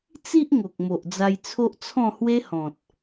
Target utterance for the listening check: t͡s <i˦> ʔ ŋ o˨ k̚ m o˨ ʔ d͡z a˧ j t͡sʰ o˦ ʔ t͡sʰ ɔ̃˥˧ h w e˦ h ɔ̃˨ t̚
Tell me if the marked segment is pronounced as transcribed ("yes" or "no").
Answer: yes